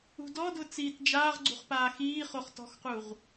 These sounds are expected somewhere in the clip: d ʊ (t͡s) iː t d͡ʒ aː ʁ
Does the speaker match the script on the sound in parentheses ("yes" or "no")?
yes